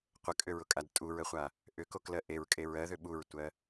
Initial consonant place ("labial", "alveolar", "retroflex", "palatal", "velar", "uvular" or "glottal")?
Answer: uvular